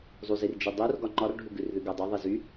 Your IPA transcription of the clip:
zˤ u z i r d͡ʒ i dˤ u r ɡ ɒ ŋ͡ǃ ɒ r ɖʱ u ɡ ʉ r ð ʉ ɡ o dˤ u ðˤ i z y

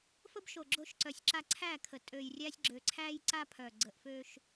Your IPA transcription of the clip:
f ə˦ b ʃ o˨ ɡ͡ǁ o˦ ʃ ǀ œ˨ sʲ ǁ a˦ ǀʰ æ˦˨ kʰ ə˨ tʼ ø˨ j rʲ æ˦ sʲ ɡ͡ǁ ø˨ ǀʰ æ˦ j ǀ a˦ pʰ œ˨ ɡ͡ǀ ə˨ ʔ f ø˦ ʃ

